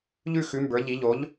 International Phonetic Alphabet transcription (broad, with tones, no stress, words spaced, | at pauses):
ʎʉ˥˨xʉ˩˥mbə˞˩˥ʎi˩˥ ʎo˩˥ʎ